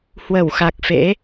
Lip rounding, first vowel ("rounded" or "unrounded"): unrounded